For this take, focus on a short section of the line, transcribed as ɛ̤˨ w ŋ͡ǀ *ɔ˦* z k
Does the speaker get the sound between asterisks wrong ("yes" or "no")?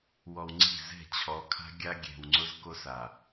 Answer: yes